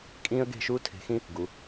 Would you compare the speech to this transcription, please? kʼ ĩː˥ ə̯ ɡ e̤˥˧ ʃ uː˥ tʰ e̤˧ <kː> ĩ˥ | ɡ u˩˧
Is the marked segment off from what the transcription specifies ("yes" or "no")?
yes